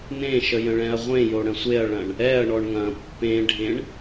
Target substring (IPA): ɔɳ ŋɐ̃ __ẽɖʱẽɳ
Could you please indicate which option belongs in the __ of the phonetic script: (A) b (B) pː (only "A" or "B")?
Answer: B